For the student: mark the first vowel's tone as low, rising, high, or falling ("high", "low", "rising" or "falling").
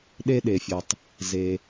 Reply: high